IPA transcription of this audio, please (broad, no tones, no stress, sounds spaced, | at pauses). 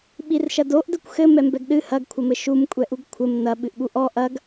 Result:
ɓ i r ʃ ɐ d o ʔ d ɘ kʷ x ɘ m ɛ m b ɛ ɡ ɗ ɨ h ɐ ɡ kʷʰ ɐ m ɘ ʃ u m kʷʼ ɛ ʔ u ɡ kʷʰ ɘ m n ɐ ɓ ɨ ʔ ɓ u ʔ ɔ ʔ ɐ ɡ